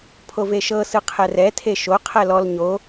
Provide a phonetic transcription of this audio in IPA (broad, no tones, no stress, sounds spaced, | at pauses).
pʰ o v e ʃ ɤ s ɯ qʰ ɛ r ɛ tʰ e ʃ o qʰ ɛ l ɔ l ɲ o